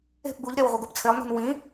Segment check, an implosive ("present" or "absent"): absent